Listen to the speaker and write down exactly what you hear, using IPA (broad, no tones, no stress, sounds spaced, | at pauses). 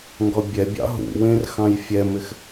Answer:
ŋ ɡ ɔ bʲ ɛ bʲ ɑ̰ ɦ ṵ w ẽ r x ɑ̃ j fʲ ɛ m ɪ x